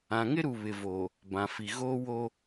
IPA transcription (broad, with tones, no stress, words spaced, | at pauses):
ã˨ŋɪ˦ɾu˨ βɪ˨voː˨ | bã˨fi˨ɣoː˦woː˦